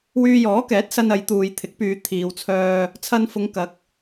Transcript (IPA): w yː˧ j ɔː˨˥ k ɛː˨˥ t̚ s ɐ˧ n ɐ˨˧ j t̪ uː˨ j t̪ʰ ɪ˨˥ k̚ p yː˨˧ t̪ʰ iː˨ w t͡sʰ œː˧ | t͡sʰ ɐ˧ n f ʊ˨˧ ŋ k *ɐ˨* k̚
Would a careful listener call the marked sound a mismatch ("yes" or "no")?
yes